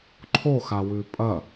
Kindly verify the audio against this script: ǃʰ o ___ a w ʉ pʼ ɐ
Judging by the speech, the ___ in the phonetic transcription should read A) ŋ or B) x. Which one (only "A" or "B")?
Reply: B